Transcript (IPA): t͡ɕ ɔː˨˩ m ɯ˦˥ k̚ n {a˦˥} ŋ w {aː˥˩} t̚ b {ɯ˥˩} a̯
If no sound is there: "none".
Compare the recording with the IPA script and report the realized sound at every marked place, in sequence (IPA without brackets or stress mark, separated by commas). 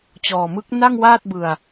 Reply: a˥˩, aː˥˩, ɯ˧